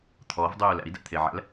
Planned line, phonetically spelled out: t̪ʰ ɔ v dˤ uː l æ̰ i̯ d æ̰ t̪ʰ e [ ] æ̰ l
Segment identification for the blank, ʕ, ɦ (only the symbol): ʕ